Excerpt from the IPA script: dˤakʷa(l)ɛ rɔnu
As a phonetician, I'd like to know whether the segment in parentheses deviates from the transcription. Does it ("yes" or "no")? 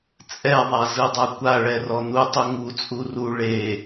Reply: yes